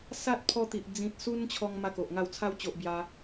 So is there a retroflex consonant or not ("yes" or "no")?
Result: no